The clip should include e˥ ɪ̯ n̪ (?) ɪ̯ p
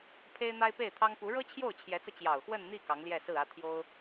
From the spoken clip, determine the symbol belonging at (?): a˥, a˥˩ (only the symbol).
a˥